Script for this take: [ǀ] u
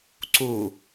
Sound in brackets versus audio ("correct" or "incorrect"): correct